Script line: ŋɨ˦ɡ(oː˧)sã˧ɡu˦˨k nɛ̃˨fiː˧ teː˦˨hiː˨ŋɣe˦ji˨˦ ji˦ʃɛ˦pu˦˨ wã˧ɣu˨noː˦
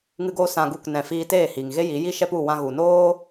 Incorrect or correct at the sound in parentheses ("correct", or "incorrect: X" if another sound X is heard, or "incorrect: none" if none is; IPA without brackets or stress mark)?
incorrect: oː˦